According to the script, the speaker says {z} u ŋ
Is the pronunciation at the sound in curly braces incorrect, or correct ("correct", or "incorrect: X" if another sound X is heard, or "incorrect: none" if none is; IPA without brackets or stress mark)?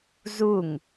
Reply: correct